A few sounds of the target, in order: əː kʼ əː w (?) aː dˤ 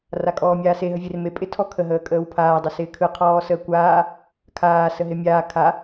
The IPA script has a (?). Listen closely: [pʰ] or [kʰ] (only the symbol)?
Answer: pʰ